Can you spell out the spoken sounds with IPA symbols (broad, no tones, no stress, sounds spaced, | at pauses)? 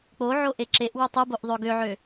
k͡p o ʕ o ʔ e ǁ e ʔ w u tˤ ɯ b o ʔ ðˤ ø ɡ ø ʕ ø